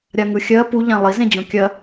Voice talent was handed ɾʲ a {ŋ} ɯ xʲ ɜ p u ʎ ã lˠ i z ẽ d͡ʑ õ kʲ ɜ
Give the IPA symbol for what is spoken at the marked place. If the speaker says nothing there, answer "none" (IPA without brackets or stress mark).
ŋ